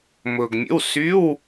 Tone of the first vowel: low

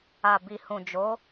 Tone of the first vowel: low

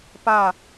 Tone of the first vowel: falling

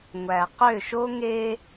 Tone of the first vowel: low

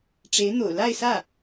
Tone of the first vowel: rising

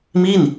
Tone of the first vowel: falling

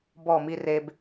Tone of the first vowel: falling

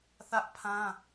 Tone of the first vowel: high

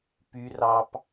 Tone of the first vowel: high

